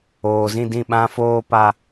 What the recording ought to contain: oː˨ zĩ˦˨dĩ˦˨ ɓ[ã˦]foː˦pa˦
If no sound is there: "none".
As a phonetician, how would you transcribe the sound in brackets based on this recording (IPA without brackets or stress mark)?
ã˦